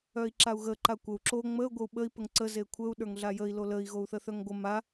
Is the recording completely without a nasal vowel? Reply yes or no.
yes